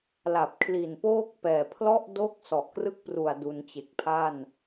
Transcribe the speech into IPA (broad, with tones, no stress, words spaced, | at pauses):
la˨˩p̚ kʰli˨˩npoː˥˩k̚pɛː˨˩ pʰlɔ˥˩ʔdo˥˩k̚ sɔ˨˩ʔkrɯ˥˩k̚pru˨˩a̯ du˧nt͡ɕe˨˩k̚pʰa˥˩n